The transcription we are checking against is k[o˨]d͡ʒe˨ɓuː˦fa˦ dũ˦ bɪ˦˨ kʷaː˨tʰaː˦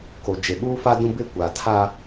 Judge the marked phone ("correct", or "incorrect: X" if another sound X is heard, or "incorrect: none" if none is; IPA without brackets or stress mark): correct